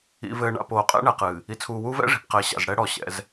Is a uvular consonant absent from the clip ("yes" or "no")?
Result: no